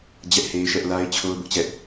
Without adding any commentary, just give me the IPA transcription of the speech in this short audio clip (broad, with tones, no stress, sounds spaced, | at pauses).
d͡ʑ ɛ˦ ʔ h e˦ ɪ̯ ʃ ɛ˦ ʔ l a˦ ɪ̯ t͡ɕʰ o˦ ʊ̯ b ʊ˦ ʔ t͡ɕ ɛ˦ ʔ